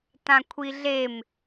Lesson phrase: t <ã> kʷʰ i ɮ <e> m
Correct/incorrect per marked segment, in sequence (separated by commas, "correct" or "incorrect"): correct, correct